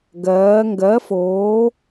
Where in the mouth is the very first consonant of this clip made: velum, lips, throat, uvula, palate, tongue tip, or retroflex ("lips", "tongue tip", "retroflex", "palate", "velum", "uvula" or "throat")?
velum